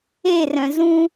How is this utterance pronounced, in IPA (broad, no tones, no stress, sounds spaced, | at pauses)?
e r œ̃ z ũ